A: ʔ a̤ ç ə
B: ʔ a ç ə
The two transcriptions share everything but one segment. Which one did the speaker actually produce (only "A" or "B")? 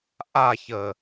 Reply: B